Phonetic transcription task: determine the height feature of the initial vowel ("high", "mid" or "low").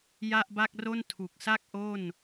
low